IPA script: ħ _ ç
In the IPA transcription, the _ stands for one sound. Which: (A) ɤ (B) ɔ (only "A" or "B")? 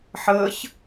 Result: A